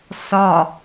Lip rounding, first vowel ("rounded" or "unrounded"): rounded